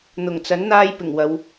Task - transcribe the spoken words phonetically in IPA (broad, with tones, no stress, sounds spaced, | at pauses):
n̪ ʊ˨˩ ŋ t͡s ɐ˨˥ n n̪ aː˥ j p ɪ˨˩ ŋ w ɐ˨˧ w